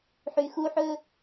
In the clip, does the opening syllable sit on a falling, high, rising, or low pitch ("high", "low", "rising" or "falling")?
low